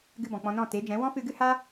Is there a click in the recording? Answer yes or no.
no